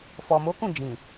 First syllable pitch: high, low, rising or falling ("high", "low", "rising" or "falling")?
low